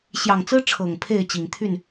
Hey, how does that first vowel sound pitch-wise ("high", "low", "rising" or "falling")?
low